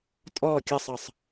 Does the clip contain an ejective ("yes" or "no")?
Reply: yes